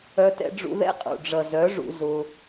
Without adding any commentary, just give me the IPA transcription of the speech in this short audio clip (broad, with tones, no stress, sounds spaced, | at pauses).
œ˧ t ɛ̰˧ ɖ͡ʐ ṵ˧ ð ɛ̰˦ qʼ ṵ˨ ɖ͡ʐ ʌ˨ z œ˨˦ ʐ ṵ˧ z ʊ˧